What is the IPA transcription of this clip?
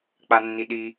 k͡p a nː i ɗ i

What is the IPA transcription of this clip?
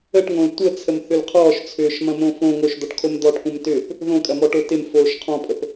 ə ʈ ŋ õ l tʷ ə t͡sʰ ə m θ ʏ l qʰ ɔː ʃ t͡sʰ ʏː ʃ m ɐ̃ m õ f õ ŋ o ʃ d̪ ɒ ʈ kʰ o m d̪ ɔː ʈ kʷ ɐ̃ m t ʏː p | ð õ kʼ ɐ m ɔ ʈ o t ɪ m f oː ʃ qʰ ɔ̃ pʼ ə p

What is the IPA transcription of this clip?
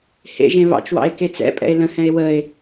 h ḛ ʒ ẽ β ɑ̰ t͡ʃ w ɑ̰ e̯ k e t͡s ɛ̰ pʼ ɛ̰ e̯ l ə̃ h ɛ̃ e̯ w ə e̯

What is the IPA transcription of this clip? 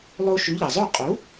lˠ o˧ ʃ ʉ˩˥ ʎ ɐ˩ zˤ o˥˩ qʼ u˩˥

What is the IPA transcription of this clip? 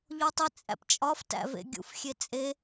ʎ o tˤ i t͡sʼ æ̰ p t͡ʃʼ ɒ f t æ̰ v ḛ ɡʲ ṵ f xʲ e t͡sʼ e

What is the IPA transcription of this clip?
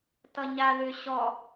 t ʌ ɲ a ð ʏ ɕ ɔ

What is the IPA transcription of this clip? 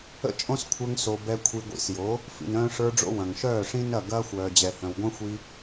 ə̰˦ t͡ʃʼ õ˦ s kʷʰ ə˞˧ ŋ s o˨ b ɛ˧ kʷʰ i˧ ɡʷ ḭ˧ s j o˨˦ | f ḭ˨ n œ̃ː˧ ʂ ə˞˧ ɖ͡ʐ o̰˧ w ɐ̃˨ ŋ ʃ œː˦˨ ʂ ĩ˦ n ɐ˦˨ ɡ ɐː˦ xʷ œː˨ d͡ʑ ɛ˨ h œ̃˨ w ɡʷ œ̃˦ xʷ i˦

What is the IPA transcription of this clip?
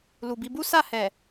l u˨ b i˨˦ b u˦ s a˦˨ h ɛ˨

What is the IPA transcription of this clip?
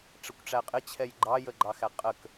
ʈ͡ʂ ə kʷ ʈ͡ʂ æ qʼ ɪ t͡ɕʰ ɛ j ɡ͡ǃ ɑ j ə ɡ͡ǃ ɑ x æ qʼ ə k

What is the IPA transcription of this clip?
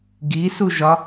ɡ i s u ʒ ɒ

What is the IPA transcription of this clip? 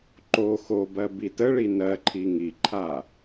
ǃ o x o b ɜ b i t ə ɭ i n ɜ ǃʰ i ŋ i ǃʰ a

